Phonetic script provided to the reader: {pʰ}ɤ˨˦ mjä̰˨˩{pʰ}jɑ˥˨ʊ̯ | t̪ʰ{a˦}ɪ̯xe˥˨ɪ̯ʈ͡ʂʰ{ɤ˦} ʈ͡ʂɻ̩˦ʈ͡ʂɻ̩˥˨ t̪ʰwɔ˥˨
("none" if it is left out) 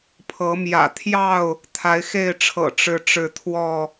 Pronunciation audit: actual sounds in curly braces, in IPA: pʰ, t̪ʰ, a˨˦, ɤ̰˨˩

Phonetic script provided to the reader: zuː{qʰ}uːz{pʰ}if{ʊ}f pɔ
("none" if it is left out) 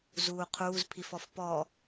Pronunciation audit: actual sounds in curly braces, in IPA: qʰ, pʰ, ɔ

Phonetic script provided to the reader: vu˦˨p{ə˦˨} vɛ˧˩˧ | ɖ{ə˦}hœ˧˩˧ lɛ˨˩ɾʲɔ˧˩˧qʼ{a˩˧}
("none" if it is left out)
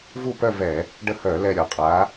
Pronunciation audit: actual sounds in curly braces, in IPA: œ˦˨, ə˦˨, a˩˧

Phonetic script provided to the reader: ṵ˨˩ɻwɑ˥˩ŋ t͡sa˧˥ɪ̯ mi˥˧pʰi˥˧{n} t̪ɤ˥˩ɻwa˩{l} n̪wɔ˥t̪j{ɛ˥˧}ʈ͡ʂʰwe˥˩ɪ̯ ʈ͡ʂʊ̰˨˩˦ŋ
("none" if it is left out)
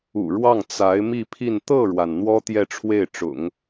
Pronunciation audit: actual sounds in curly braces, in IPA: n, n, ɛ˥˧

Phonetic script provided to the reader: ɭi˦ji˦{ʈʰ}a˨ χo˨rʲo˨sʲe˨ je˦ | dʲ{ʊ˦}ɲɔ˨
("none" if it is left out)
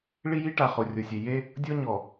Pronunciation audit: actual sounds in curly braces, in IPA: ʈ, ɔ˦

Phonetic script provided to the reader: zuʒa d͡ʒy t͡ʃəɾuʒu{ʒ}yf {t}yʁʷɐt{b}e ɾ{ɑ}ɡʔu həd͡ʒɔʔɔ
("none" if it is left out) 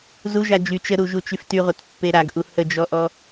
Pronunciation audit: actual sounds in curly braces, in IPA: t͡ʃ, t, pː, a

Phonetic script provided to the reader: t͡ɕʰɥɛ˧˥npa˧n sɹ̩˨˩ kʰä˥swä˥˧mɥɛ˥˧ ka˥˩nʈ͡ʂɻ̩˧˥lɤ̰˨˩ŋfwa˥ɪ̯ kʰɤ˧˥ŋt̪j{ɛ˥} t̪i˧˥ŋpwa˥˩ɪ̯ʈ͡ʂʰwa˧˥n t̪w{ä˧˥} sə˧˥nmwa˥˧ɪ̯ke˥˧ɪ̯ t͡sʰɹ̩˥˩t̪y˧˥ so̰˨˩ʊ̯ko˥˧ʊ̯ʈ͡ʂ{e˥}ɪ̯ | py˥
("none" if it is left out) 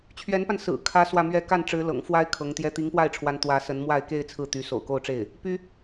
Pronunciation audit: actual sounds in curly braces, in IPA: ɛ˥, ä˧˥, e˥˩

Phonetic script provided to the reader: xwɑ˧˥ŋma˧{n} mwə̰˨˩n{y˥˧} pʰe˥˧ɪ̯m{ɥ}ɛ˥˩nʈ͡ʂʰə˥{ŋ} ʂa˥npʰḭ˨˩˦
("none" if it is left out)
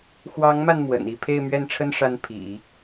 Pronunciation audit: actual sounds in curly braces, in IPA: n, i˥˧, ɥ, n

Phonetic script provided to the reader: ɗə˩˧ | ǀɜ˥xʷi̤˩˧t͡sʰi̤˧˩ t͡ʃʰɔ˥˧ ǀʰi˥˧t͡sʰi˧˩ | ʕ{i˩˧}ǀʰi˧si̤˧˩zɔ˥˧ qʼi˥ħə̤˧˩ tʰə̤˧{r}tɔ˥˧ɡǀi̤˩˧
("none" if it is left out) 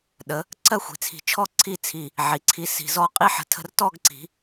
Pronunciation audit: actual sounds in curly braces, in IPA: i˩˧, r

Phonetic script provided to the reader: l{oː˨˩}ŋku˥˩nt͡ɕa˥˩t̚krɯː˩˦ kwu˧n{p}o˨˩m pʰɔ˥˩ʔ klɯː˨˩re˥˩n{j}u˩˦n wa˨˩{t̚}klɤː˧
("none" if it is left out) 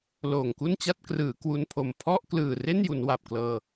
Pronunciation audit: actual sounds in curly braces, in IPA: oː˨˩, pʰ, j, p̚

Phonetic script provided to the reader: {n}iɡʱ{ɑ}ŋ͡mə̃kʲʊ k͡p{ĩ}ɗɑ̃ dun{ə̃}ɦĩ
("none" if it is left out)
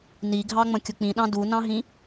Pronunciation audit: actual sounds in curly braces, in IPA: n, ɑ, ĩ, ɑ̃

